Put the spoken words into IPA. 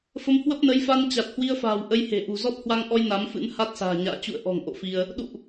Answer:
f ə˨˦ m h w ə˦˥ p̚ n ə˨˦ j f a˧ n t͡ɕ a˨˩ t̚ h w i˧ ə̯ f a̤ː˨˩ w ʔ ə˧ j h e̤˨˩ ʔ ṳ˨˩ z ɔ˦˥ t̚ h w a˧ ŋ ʔ ɔ˧ j n a˨˦ m f ɨ̰˧˥ n h a˦˥ t̚ s a̤ː˨˩ ɲ a̰ː˧˨ t͡ɕ ṵ˧˨ ə̯ ʔ ɔ̤˨˩ ŋ ʔ o̰˧˨ f i˧ ə̯ | ɗ ṵ˧˨ ʔ

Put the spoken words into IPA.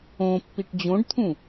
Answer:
õ pː i ʈ d͡ʑ õ ɖ t̪ʰ ũ

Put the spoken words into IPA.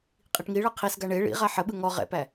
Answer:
qʼ i ʈ ŋ i ɭ ɤ qʰ i s ɡ a ɳ e ɭ ḭ ʁ a ħ ə ɓ ɯ ŋ ɔ ʁ ɛ̰ p æ

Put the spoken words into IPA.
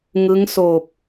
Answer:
ŋ ɯ˦˥ ŋ s oː˨˩ p̚

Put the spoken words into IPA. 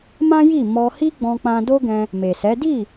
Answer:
m ã˦ j i˦˨ m ɔ˧ h i˦ ɡ͡b ɔ̃˧ k͡p ã˧ d o˦ ɡ ɛ̃˧ | m e˨ s ɛ˨˦ d i˦˨

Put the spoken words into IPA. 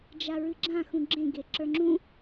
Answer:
d͡ʒ a ɹ ɨ ɡ͡ǁ ã x ũ ɡ͡ǁ ẽ ɡ e ǁ ə˞ ŋ͡ǁ ũ

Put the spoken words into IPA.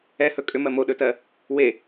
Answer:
ɛ h ɵ kʼ ʏ m ɜ m o ɗ ɵ t ɜ | w e

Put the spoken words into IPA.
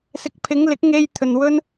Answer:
s ɪ˨˥ k̚ pʰ ɪ˨˧ ŋ l ɪ˨˥ k̚ ŋ e˧ j t̪ʰ ɵ˨ n w ɵ˧ n

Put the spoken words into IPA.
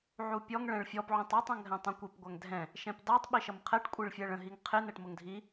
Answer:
ʕ u pʲ ɔ ŋ ɭ ɛ̃ ɭ fʲ ɔ p ʕ ũ tˤ ɔ tˤ ɔ̃ ŋ ɦ ɛ̃ tˤ ɔ̃ kʷ i p ɡʷ æ ŋ dʱ ɛ̃ | ʃ ɛ̃ p d ɑ tˤ ɓ i ʃ ʌ m qʰ ɛ ʈ kʷʼ i ɭ fʲ ɛ ɭ ə̃ ɦ i ŋ qʰ ɪ n ɛ ʈ m ʊ ŋ dʱ i

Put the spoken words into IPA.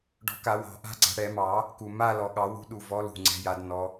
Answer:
ɖ ɔ̤˨˩˦ k a˨˩˦ w ɑ̤˨˩˦ ʔ a̤˦˥ ɡ͡ǀ a̤˨˦ ɽ ɛ˨˩˦ m ɑ˨˩˦ | k u˨˩ m a˥˧ l ɔ˨˩ ɠ ɑ˨˩˦ w ṳ˦˥ ɗ u˨˩ v ɔ˨˦ l ṳ˨˩ ŋ͡ǀ ɛ̤˨˦ j a˨˦ d n ɔ˨˦

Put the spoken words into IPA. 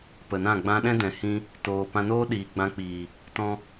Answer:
p ə˨ n ã˦˨ ɡ͡b ã˧ ɗ ɛ̃˦ d ɛ̃˨ h ĩ˦ | t oː˨ p ã˧ n oː˦ ɗ iː˨ ɡ͡b ã˧ k͡p iː˨ | t ɔ̃˧

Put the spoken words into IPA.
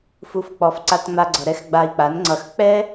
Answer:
f u˧ f k͡p ɔ˧ f ǀ a˦ t ŋ͡m a˦ ɡ͡ǀ ʌ˧ ɾ ɛ˦ x ɡ͡b a˧ i̯ k͡p a˨˦ n ŋ͡ǀ ʌ˧ x k͡p ɛ˦

